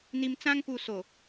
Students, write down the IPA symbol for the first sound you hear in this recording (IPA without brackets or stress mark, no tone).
n̪